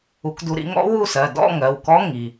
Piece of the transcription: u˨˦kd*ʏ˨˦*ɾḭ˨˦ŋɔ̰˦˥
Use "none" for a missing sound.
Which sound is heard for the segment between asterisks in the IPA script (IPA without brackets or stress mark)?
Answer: u˨˦